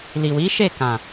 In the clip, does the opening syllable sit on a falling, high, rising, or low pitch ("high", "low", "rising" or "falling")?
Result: low